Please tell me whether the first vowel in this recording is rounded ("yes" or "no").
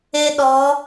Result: no